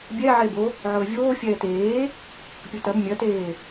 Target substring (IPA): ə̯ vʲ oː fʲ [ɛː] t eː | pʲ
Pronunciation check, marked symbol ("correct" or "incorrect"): correct